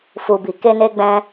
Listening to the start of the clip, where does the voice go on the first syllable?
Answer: low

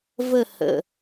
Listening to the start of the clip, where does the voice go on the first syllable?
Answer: falling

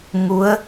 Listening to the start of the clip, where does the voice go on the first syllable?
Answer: rising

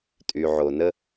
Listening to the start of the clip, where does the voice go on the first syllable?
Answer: low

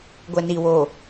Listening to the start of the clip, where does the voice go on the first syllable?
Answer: low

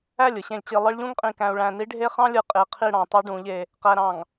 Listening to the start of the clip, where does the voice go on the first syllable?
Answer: falling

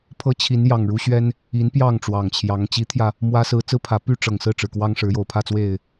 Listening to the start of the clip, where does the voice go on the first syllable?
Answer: rising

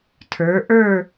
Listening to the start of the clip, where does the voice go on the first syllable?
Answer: rising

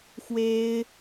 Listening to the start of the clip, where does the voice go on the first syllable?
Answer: high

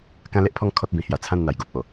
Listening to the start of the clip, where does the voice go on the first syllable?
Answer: high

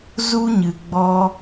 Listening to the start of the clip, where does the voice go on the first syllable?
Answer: high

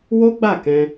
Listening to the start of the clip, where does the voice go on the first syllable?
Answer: high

